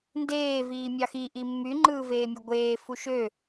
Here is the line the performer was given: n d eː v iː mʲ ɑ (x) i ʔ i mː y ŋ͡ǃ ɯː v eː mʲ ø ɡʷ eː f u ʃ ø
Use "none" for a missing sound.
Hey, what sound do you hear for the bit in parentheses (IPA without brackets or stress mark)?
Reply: x